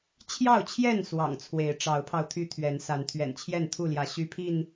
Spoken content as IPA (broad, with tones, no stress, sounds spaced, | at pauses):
t͡ɕʰ j ɑ˥˨ ʊ̯ t͡ɕʰ j ɛ˥˨ n s w ɑ̰˨˩ ŋ t͡sʰ w e˨˦ ɪ̯ ʈ͡ʂ ɑ˨˦ ʊ̯ pʰ ɑ˧ ʊ̯ t̪ʰ y˦ t̪ʰ ɥ ɛ˨˦ n s a˨˦ n t̪ʰ ɥ ɛ̰˨˩ n t͡ɕʰ j ɛ˥˨ n t̪ʰ u˥˨ l j ä˨˦ ɕ y˦ pʰ i˥˨ n